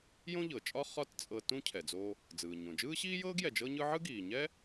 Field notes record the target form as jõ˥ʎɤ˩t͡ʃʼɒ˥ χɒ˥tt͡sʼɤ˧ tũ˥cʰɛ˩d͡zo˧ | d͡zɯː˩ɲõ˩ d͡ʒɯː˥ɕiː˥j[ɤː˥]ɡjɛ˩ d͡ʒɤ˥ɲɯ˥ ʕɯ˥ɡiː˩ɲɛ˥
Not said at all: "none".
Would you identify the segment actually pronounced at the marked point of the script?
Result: ɤː˥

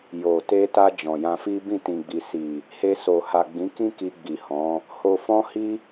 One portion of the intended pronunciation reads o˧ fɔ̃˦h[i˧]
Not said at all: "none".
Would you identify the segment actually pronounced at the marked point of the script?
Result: i˦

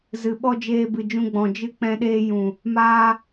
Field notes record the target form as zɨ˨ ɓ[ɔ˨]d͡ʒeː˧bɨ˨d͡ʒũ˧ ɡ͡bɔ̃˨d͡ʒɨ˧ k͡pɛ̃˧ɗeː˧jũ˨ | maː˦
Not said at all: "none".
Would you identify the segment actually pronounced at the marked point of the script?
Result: ɔ˦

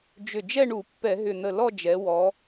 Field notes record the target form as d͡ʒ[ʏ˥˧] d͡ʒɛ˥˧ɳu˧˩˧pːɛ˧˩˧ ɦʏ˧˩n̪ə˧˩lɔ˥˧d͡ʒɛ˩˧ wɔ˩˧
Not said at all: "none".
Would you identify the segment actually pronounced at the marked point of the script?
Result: ʏ˧˩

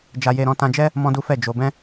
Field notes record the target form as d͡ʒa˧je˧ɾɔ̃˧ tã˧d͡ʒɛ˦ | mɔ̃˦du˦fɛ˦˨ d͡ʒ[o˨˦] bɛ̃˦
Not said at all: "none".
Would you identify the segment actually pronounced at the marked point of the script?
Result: o˧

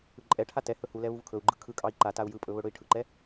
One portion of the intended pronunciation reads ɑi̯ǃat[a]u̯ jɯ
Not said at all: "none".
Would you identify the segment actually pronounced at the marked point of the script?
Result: a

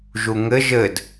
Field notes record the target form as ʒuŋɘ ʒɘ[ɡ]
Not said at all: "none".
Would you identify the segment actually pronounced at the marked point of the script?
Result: d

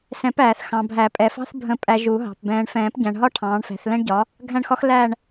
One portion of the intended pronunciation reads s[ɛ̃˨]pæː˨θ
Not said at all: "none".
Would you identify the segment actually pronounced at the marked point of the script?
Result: ɛ̃˨˩˦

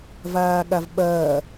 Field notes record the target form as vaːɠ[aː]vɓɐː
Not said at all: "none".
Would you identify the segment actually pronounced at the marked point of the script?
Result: a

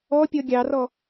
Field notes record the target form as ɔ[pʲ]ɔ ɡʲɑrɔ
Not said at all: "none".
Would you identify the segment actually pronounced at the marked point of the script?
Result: pʲ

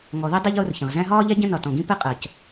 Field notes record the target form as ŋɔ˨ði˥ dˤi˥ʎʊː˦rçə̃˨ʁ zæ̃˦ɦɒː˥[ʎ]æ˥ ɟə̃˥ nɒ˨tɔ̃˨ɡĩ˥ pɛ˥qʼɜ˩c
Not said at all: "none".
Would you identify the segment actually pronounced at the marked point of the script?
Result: ʎ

